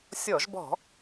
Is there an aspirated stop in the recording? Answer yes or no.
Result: no